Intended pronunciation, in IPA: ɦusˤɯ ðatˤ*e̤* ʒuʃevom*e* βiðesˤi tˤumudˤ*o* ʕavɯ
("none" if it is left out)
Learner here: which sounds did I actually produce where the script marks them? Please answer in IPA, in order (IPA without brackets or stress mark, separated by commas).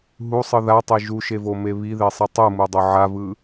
e, e, o